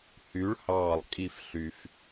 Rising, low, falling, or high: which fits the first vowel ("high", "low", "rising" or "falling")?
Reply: rising